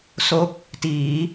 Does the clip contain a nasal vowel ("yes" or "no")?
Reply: no